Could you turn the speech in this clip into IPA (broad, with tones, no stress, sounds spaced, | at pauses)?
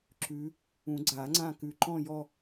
ǁ ʉ˨˦ | ũ˨˩˦ ɡ͡ǀ a˨˩˦ ŋ͡ǀ ã˦˨ k ʉ˨˩ ǃ ɔ̃˦˨ j ɔ˦˨